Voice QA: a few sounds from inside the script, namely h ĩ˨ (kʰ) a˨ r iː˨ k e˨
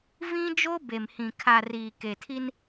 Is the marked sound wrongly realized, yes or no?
no